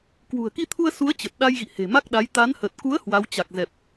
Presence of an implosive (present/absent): present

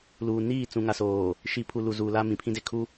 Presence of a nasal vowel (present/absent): present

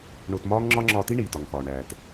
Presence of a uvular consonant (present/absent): absent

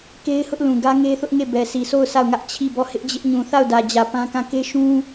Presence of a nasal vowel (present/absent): present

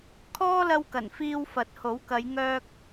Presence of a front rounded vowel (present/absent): present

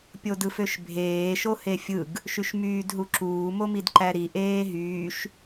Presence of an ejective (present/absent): absent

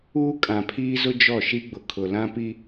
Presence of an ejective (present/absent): present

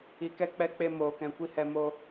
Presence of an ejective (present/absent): absent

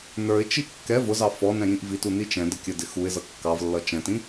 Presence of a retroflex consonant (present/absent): absent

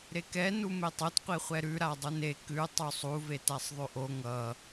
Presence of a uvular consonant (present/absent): present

